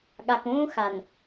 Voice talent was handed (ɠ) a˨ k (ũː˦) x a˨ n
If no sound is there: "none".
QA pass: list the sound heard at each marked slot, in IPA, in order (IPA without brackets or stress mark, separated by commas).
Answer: ɠ, ũː˦